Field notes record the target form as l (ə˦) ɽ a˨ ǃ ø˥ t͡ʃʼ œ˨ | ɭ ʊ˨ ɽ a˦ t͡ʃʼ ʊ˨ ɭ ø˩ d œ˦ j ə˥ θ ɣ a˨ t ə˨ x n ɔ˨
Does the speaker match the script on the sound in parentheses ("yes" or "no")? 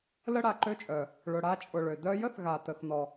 no